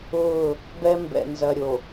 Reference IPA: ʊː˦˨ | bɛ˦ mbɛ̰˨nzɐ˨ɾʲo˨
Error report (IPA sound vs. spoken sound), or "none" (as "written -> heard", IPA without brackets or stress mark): none